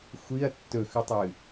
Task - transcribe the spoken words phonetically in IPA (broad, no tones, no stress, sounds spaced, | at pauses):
xʷ i ɐ̯ tː ɵ x ʉ tˤ ɨ